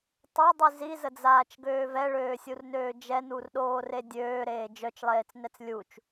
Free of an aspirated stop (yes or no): yes